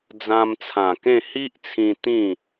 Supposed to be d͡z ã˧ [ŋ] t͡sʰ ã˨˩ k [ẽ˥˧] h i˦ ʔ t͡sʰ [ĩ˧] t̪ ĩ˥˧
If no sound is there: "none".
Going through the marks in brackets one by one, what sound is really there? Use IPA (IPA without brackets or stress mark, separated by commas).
m, ẽ˥˧, ĩ˧